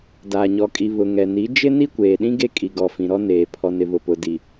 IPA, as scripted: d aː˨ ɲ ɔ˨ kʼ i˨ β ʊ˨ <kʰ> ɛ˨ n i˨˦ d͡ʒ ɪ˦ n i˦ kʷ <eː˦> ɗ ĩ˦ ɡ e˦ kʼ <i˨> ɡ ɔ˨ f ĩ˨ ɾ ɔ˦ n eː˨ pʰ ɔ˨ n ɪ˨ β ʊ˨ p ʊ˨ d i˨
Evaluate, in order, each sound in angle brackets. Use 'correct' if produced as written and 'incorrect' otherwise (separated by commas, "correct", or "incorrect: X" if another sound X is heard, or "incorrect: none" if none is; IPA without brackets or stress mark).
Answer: incorrect: ŋ, incorrect: eː˨, correct